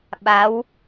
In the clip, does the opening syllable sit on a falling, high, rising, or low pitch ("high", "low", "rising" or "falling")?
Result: rising